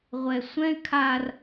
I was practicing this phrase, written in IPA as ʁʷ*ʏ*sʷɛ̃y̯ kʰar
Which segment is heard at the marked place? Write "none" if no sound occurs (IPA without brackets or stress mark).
ɛ